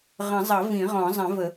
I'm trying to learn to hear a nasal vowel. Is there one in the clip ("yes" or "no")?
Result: yes